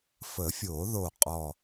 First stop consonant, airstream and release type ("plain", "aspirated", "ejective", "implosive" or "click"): ejective